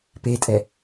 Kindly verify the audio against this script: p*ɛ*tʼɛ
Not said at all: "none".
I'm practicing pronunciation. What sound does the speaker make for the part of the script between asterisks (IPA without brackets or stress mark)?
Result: e